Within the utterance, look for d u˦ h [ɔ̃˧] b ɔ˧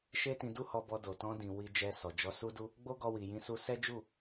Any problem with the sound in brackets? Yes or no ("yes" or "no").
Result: yes